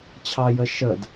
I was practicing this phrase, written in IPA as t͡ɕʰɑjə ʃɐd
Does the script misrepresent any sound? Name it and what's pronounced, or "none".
ɐ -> ə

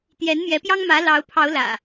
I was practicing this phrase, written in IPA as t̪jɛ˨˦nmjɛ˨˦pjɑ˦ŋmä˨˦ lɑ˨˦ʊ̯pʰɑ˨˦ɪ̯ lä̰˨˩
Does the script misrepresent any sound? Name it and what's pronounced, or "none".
ɪ̯ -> ʊ̯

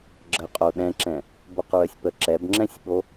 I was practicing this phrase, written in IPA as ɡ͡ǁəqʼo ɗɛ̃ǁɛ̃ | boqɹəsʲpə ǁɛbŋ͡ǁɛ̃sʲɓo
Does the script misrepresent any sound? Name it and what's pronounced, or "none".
none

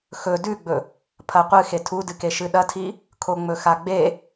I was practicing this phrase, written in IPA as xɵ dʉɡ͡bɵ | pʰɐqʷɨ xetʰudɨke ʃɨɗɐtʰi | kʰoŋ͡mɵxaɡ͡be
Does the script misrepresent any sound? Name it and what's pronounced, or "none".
none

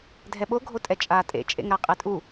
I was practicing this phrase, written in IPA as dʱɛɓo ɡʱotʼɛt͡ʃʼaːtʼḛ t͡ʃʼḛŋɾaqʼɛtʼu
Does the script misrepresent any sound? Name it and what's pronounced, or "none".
none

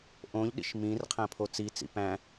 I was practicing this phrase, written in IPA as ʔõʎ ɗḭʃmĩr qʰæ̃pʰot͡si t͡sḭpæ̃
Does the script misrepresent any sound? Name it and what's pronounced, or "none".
none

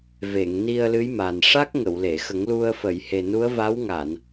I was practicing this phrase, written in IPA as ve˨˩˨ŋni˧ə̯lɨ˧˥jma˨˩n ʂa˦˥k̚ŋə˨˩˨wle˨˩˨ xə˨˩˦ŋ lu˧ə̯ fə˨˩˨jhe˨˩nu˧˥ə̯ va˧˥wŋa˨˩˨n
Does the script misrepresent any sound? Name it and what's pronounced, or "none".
none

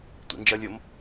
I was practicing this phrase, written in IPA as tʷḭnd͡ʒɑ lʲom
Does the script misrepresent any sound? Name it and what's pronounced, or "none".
ɑ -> ʌ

